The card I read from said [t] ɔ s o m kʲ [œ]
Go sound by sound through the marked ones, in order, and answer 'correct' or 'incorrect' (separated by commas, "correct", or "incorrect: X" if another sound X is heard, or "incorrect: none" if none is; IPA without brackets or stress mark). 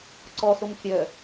incorrect: ǀ, correct